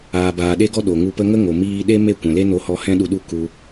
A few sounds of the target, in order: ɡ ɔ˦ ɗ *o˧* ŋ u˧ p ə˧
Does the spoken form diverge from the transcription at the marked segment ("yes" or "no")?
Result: yes